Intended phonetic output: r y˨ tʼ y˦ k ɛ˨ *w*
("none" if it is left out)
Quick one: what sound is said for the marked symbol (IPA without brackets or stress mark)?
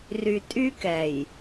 j